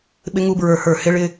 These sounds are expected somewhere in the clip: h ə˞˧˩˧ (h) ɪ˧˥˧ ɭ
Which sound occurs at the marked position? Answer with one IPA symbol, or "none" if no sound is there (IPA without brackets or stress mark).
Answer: h